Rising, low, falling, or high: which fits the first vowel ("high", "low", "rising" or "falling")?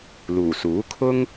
low